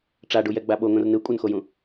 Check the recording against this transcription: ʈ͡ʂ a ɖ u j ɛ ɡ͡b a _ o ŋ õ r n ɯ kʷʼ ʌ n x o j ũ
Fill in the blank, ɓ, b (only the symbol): ɓ